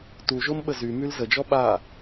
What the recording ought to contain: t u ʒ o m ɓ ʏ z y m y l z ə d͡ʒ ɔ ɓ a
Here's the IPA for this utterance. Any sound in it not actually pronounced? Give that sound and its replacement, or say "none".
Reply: ʏ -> ə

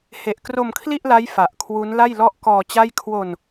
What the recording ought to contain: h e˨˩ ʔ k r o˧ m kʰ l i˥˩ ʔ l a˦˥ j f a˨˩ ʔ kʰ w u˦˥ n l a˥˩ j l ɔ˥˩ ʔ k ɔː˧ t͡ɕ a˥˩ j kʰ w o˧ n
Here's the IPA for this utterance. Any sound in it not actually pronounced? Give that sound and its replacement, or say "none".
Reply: none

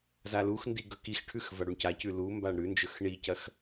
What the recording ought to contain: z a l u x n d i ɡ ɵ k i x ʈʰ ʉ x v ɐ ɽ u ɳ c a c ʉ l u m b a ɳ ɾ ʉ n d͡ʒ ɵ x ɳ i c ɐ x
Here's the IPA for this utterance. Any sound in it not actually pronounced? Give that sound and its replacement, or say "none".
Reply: none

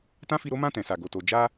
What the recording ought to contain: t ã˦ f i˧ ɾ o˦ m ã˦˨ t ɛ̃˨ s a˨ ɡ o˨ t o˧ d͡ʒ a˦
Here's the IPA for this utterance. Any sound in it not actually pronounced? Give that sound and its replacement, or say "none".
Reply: none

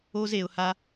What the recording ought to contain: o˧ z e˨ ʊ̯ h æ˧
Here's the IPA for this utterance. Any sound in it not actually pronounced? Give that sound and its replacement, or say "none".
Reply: æ˧ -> a˧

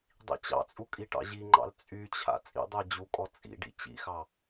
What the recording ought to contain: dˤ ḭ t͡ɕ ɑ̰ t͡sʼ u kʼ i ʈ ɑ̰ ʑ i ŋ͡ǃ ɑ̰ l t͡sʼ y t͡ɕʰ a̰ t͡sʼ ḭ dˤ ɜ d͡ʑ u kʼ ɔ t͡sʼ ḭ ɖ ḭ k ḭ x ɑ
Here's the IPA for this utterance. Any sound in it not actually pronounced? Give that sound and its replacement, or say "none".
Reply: k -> t͡ɕ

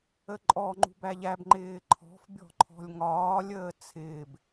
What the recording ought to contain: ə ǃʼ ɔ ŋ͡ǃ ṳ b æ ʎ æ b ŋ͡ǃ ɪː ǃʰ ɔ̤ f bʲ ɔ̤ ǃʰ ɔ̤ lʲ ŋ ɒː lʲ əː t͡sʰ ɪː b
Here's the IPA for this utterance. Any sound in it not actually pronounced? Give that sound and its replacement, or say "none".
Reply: none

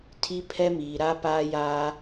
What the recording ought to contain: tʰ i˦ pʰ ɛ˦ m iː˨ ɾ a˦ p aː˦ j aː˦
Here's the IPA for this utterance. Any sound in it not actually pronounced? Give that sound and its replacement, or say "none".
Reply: none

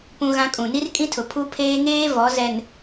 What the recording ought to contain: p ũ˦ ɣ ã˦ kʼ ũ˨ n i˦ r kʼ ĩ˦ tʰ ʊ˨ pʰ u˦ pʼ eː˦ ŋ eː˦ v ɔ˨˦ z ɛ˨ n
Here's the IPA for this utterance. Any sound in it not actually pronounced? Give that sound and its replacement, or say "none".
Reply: pʼ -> pʰ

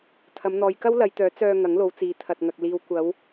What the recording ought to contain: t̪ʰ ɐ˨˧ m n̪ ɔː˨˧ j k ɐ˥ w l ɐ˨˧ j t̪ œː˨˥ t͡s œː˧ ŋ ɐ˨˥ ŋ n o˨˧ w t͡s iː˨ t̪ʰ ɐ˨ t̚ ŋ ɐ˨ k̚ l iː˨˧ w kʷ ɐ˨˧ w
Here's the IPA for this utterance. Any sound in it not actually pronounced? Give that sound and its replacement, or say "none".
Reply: n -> l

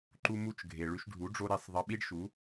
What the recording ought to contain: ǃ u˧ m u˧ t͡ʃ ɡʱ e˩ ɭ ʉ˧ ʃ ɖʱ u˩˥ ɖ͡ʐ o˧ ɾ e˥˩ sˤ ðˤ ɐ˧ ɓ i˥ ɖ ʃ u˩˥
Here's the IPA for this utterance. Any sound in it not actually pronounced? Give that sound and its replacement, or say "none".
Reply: none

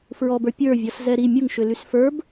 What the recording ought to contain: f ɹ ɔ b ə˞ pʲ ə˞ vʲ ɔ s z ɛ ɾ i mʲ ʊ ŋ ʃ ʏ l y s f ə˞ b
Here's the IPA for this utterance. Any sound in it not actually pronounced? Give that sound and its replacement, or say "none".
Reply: none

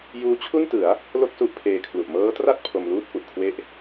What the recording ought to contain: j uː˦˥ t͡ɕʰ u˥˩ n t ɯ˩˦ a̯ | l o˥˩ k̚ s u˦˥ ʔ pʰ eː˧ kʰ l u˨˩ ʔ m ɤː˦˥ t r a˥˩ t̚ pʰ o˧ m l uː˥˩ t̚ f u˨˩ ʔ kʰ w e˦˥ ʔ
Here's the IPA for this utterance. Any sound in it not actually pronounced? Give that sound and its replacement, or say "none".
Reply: none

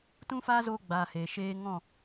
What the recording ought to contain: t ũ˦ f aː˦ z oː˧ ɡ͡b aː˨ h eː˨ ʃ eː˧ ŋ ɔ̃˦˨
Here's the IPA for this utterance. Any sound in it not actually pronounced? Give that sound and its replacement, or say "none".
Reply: none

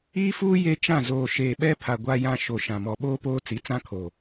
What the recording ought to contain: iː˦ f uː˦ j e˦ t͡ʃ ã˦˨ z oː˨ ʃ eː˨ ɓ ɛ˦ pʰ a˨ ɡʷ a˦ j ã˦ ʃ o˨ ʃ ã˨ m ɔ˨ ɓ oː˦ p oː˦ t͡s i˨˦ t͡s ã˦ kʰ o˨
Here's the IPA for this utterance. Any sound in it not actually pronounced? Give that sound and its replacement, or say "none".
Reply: none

